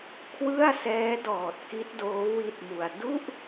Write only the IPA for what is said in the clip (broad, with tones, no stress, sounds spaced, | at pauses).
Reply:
kʰ w ɯ˥˩ a̯ s ɛː˦˥ d ɔː˨˩ t̚ k i˦˥ t̚ d oː˦˥ w i˥˩ t̚ m u˧ a̯ d u˥˩ ʔ